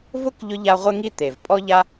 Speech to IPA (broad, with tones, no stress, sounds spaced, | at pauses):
v ʊ˥ k ʎ ʊ˥ ʎ a˦ ʁʷ ɪ˥ ŋ i˥ t̪ e˩ v pʼ ɔ˥ ʎ a˥